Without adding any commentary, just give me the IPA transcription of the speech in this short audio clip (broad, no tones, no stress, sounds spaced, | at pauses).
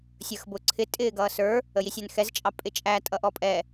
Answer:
sʲ ə˞ x b ʊ ǀʰ ɪ tʼ ɪː ɡ ʌː s ə˞ | ə j i sʲ æ n x ɛ z t͡ʃʼ ɑ pʼ ɪ t͡ʃʼ æ tʼ ʌ ʔ ɔ pʼ ɛ